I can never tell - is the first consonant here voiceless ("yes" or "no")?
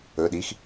no